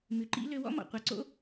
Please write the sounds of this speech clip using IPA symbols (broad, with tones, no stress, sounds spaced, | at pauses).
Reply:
m ʉ˩ ǃ ḭ˧˥ l ø˧ w ɔ̰˥ m ɔ̰˩ qʷ ɑ˩˧ ǀ o̰˥